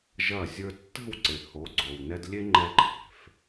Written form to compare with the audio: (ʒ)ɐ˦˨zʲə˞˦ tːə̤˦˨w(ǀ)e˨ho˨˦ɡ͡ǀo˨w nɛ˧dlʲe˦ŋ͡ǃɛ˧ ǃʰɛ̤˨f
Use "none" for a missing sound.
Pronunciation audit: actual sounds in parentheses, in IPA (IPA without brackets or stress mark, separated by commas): ʒ, ǀ